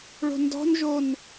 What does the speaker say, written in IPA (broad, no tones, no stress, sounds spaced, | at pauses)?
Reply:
ɭ o̤ n d ɔ̤ n ʒ o n